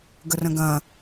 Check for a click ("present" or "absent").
absent